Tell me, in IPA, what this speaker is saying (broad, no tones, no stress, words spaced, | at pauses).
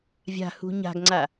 vʲa̤ hṳɲa̤ɡŋ͡ǀa